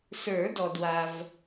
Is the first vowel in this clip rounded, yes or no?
no